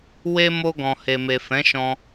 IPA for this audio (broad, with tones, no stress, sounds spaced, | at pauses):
w e˦ m o˧ ɡ ɔ̃˨ h e˨ m e˨ f ɛ̃˨˦ ʃ ɔ̃˧